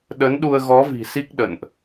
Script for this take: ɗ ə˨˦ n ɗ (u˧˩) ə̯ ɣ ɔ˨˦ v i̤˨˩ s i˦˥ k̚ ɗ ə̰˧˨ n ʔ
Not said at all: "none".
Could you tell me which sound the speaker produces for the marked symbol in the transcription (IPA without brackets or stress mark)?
u˧